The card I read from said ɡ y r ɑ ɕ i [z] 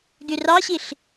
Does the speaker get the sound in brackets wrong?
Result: yes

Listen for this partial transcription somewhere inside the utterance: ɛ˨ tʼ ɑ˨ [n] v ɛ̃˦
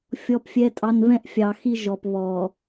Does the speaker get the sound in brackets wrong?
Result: no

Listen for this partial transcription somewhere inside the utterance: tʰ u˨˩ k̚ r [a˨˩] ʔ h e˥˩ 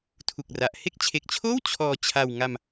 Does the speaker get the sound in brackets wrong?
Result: no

